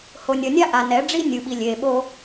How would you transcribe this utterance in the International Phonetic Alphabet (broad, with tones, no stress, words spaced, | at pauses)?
ho˨nʲʌ˨nʲa˦ ʔa˨nɛ˨˦ɖ͡ʐi˦ nʲɯ˨ɓi˨lʲeː˨ɓo˦